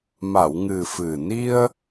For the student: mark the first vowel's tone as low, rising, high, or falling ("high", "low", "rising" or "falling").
low